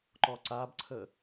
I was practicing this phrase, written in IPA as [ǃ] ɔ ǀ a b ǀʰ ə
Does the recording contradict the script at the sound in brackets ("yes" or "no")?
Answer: no